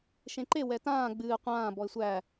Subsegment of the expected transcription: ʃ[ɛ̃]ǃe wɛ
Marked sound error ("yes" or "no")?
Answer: yes